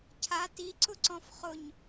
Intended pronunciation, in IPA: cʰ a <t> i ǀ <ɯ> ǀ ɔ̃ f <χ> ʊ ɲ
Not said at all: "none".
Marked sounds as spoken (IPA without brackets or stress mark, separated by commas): t, ʊ, χ